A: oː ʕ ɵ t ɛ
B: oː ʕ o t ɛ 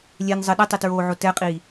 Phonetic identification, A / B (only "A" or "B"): B